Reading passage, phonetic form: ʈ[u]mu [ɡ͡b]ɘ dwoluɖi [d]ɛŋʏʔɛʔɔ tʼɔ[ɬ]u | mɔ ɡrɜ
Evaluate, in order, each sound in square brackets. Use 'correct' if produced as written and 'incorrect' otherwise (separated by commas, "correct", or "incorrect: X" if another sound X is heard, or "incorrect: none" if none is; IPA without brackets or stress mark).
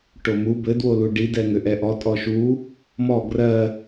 incorrect: o, incorrect: b, correct, incorrect: ʃ